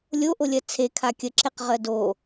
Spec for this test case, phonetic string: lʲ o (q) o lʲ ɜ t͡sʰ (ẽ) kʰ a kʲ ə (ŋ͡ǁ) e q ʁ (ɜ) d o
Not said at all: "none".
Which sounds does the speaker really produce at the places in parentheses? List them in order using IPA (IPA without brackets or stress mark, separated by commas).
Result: ʔ, e, ǁ, ɜ